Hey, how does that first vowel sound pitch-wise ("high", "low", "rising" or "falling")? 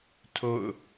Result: falling